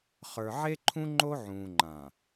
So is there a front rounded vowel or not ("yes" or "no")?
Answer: no